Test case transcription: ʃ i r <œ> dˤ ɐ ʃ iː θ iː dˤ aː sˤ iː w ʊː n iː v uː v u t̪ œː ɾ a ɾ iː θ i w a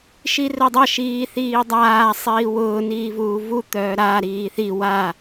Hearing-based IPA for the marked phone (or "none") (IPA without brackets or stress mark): œ